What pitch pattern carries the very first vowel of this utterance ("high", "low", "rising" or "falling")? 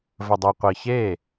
low